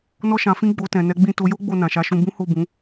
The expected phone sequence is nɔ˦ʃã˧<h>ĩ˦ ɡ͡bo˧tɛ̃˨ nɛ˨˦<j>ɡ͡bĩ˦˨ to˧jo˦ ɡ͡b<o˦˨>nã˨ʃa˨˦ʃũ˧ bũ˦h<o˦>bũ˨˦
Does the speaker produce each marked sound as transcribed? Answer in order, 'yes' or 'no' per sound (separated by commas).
no, no, yes, no